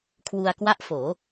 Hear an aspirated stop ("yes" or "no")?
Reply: yes